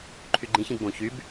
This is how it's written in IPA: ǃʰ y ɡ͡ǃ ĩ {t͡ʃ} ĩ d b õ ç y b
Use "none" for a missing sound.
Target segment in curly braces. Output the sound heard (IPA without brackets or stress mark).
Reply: ç